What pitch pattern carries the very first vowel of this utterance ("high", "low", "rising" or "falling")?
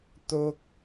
high